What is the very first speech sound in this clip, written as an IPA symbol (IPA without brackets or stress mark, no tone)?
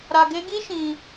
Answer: ɾ